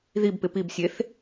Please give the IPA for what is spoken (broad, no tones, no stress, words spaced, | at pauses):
ðibpɪ pibsʲeθ